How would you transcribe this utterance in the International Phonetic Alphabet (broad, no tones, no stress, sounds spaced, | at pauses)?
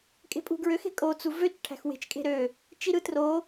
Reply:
kʼ e̤ pʼ ṳ ɡ ɹ ø x e̤ kʼ o t͡s u v ø t͡ʃ ʈʰ æ̤ x w e̤ t͡ʃ kʼ e̤ ɾ ø | t͡ʃ i ɾ ɯ t r o